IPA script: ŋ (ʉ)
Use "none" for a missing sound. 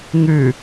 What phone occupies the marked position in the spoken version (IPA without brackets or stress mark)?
ʉ